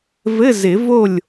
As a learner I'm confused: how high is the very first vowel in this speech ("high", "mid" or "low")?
mid